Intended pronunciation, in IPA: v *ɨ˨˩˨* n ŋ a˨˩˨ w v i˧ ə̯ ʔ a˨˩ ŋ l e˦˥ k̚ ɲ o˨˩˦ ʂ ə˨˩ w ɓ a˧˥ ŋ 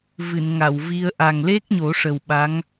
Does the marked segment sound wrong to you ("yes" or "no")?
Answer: no